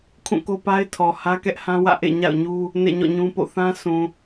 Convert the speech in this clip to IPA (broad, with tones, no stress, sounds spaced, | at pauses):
kʰ ũ˦˨ k o˦ p a˦ ɪ̯ tʰ ɔ˨ h ä˦ k ɛ˦ ʔ h ã˦ w ä̰˦˨ ʔ ḛ˦˨ ɲ a̰˦˨ ʊ̯ ɲ u˦ | n ḛ˦˨ ɲ ɔ̰˦˨ ɲ ũ˦ p o̰˦˨ θ ã˦ sʰ ũ˨